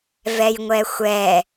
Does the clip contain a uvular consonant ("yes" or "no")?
no